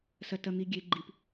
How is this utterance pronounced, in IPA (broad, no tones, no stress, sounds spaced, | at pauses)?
s ɐ t ɐ n̪ i ɡʲ e ɡ͡ǃ i p